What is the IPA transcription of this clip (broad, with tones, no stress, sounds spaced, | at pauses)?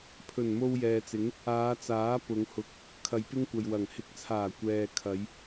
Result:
pʰ ɵ˨˩ n m o˧ w j ɛː˨ t͡s ɪ˨˥ ŋ | aː˨˧ t͡s aː˨˥ p ʊ˨˧ ŋ h ʊ˧ k̚ | kʰ ɐ˨˧ j p ɪ˥ ŋ kʷ ɐ˨ j w ɐ˨˩ ŋ h ɪ˨˥ k̚ t͡sʰ aː˨˩ kʷ ɛː˨ kʰ ɐ˨˧ j